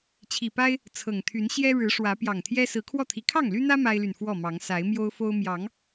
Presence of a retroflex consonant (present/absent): present